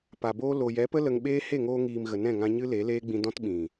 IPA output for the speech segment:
pa˨ boː˧lo˨jɛ˨˦pə˦ lə˧ŋ ɓeː˦ he˦˨ŋoː˧ŋiː˨m ɣə˨nɛ̃˦˨ŋã˧ ɲɨ˦le˨˦leː˦ɡ͡bĩ˧ dɔ̃˦tɓĩ˨

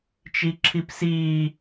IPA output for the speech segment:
t͡ʃiǁʰipsiː

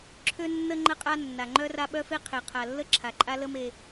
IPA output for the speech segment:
ǁʰø˦nːə˦ ŋ͡ǃə˦qʼa˦ nːa˨ŋ͡ǃœ˦ ra˦ɓœ˦fe˦ qʰe˨qʰa˨lːə˦ ǁʰa˨ǃʼa˦lə˦me˨

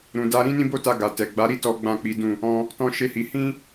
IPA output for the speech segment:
ɾũ˨da˧ ɾĩ˦nĩ˦bo˦ta˧ ɡa˨tɛ˨ɡ͡ba˨˦ɾi˦ tɔ˦ ɡ͡bã˦˨k͡pi˨˦dũ˦˨ | ɔ̃˧ | tɔ̃˦ʃe˦hi˧ hĩ˦

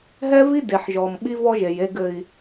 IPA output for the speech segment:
ɦɛ˦vi˦ de˨ħʒɔ˨m ɓi˦vɔ˦ʒe˨j e˦ɡɘ˦i̯

